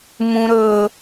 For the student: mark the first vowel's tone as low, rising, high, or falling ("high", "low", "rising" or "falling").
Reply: high